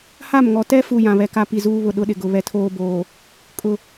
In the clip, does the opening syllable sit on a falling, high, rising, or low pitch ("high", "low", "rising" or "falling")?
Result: falling